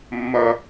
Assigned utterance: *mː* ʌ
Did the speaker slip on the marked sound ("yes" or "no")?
no